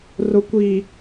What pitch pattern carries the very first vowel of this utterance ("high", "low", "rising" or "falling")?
low